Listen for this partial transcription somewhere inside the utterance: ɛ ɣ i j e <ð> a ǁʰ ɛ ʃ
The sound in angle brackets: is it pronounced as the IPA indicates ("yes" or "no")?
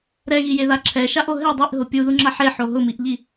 yes